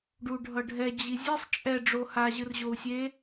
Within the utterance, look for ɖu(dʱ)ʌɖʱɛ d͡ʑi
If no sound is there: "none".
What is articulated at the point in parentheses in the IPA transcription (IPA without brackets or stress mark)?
ɖʱ